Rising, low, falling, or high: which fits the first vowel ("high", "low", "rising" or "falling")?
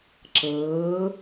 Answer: rising